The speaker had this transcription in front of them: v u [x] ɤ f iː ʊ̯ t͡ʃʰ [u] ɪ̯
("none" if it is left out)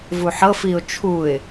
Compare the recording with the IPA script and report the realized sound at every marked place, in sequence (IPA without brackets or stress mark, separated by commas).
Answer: ħ, u